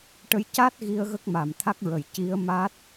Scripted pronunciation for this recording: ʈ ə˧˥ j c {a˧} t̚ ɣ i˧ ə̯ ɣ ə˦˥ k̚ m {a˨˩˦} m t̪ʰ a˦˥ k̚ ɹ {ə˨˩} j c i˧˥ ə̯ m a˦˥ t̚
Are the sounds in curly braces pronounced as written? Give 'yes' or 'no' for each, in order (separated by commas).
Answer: no, no, yes